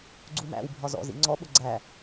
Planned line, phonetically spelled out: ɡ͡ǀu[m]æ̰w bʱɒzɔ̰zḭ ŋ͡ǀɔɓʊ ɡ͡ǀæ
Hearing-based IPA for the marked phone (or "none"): m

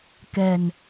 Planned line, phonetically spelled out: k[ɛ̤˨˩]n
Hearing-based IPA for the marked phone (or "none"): ɛ̤˨˩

